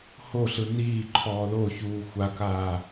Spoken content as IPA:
h o ɬ ɯ n iː ǃʰ ɔː l o ç uː xʷ a k aː

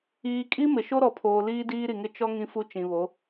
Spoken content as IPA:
iː˨ kʼ i˦ m ɪ˨ ʃ o˦ ɾ ɔ˨ pʰ oː˨ l iː˦ d iː˦ ɾ i˨ ŋ ɪ˦ t͡ʃ ɔ˦ ŋ ĩ˦ f u˦ t͡ʃ ĩ˨ β o˨˦

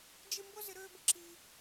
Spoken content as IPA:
d͡ʒ ɪ˥ m b ʊ˥ z ɪ˧ ɾ øː˥ b ə˧ ǁ iː˧

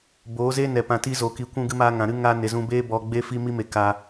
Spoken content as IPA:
b oː˨˦ z e˦ n ɛ˨ p ã˧ t i˦ z o˨ k i˨ kʷ ũ˧ ɡ ɨ˧ m aː˧ ŋ ã˨ ɾ ɨ˦ ŋ a˧ n e˨ z ũ˧ b eː˦ b ɔ˧ ɡ͡b e˦ f i˦ m i˦ m e˧ k a˧

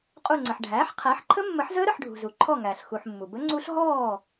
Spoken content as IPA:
qʼ u˧˩ ŋ͡ǀ ə˩ ħ ɖʱ æː˩˥ ħ qʰ æ˩˥ ħ ǃʰ ə˦˥ mː ə˨˩˦ ħ z əː˦˥ ɾ ə˥˨ ħ ɖʱ ṳ˩ z u˩ ǃʰ ɔ˧˩ ŋ æː˩ ɬ x u˩ ħ mː u˩ b ə˦˥ ŋ͡ǀ u˦˥ ɬ ɦ ɔː˥˨

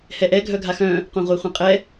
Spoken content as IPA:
h ɛ ʔ ɛ ɡʱ œ ɡʱ a x œ̃ | qʷ ã ʁʷ ɛ χʷ ɛ̃ qʼ ɛ

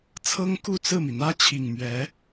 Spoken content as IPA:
t͡sʰ ɤ˥ ŋ k u˥˧ t͡s ɹ̩˥˩ m i˩ n̪ ä˥ t͡ɕʰ i˨˩ ŋ m ɥ ɛ˧˥

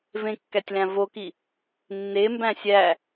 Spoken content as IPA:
v ẽ kː æ tʲ l æ̃ v o k i | nː e m b æ̃ sʲ æ

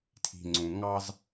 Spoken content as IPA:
tʰ i̤˨ ŋ͡ǀ ũ˨ ŋ ɑ˦ z

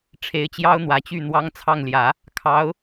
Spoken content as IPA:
ʈ͡ʂʰ e˧˥ ɪ̯ t͡ɕ j ɑ˥ ʊ̯ n̪ w ä˨˩ t͡ɕ y˥˩ n̪ w ɑ˥ ŋ t͡sʰ ɑ˥˩ ŋ l j ä˨˩˦ | kʰ ɑ˧˥ ʊ̯

